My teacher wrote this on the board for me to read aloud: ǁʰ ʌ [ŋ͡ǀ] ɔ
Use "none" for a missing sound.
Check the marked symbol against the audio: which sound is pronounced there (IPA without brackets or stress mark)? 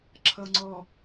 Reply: ŋ͡ǀ